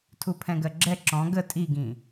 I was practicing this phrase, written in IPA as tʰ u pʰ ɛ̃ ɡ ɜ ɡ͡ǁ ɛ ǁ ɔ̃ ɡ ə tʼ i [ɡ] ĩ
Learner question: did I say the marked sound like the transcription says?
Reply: yes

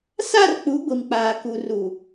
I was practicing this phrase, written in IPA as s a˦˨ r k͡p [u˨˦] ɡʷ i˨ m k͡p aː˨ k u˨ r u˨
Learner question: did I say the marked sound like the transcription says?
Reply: yes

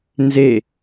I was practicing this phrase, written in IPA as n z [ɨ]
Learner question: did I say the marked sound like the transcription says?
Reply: no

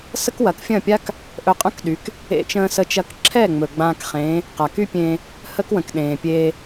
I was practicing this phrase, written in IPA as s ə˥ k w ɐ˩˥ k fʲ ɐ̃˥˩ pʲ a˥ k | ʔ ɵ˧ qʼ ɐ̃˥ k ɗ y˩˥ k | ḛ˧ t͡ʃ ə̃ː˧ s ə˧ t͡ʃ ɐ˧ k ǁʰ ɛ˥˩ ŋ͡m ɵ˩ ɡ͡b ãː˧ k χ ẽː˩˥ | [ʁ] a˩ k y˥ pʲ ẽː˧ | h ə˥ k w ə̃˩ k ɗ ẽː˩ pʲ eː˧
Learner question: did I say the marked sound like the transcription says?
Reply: no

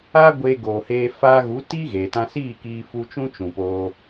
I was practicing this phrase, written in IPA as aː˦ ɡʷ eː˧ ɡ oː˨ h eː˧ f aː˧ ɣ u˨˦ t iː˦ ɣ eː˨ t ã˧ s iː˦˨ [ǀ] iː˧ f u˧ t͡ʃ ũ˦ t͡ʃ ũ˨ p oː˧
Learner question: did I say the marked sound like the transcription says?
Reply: no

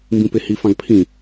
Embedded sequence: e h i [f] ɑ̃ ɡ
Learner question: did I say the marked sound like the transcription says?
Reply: yes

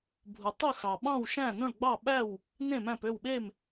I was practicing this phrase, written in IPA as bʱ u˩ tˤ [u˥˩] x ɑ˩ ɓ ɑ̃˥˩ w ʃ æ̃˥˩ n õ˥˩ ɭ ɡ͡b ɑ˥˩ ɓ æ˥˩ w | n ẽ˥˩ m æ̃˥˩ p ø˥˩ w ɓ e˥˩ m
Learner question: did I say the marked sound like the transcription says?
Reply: no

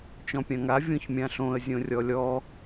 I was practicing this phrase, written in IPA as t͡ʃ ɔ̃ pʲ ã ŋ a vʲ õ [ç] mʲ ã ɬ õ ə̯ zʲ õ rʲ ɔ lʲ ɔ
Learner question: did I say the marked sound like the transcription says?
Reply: yes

